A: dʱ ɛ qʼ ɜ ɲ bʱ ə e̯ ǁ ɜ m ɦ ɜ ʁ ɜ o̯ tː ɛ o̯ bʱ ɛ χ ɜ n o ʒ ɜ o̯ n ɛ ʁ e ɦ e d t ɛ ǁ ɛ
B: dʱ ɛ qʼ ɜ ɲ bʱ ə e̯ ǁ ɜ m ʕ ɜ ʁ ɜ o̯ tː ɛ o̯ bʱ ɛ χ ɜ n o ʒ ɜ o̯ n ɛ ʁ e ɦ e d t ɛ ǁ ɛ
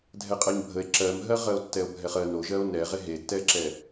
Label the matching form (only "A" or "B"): A